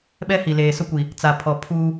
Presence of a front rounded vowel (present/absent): absent